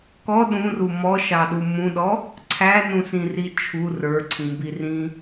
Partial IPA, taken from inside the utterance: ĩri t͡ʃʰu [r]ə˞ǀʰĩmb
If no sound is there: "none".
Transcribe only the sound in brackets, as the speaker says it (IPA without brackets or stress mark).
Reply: r